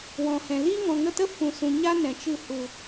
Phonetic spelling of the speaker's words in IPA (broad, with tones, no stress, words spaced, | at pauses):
wɔ̃˨hɛ̃˨ liː˦ŋɔ̃˨ŋə˧ tə˦fũ˨sũ˨ ɲa˦ nɛ̃˨t͡ʃɨ˧ hu˨